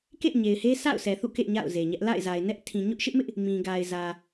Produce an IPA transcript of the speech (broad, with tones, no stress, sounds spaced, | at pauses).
k ḛ˦˨ ɪ̯ ɲ e˨ ɪ̯ h e˦ sʰ a̰˦˨ ʊ̯ s ɛ˨ θ ṵ˦˨ k ḛ˦˨ ɲ a̰˦˨ ʊ̯ z e˨ ɲ ɛ˦ ʔ l a̰˦˨ ɪ̯ z a˨ ɪ̯ n ɛ˦ ʔ tʰ ĩ˨ ɲ ʊ˦ ʔ ʃ ɪ˦ ʔ m ɪ˦ ʔ | m ĩ˨ ɡ a˨ ɪ̯ z ä˨